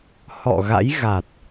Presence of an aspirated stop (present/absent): absent